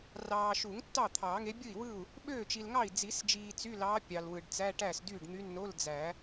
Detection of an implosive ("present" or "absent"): present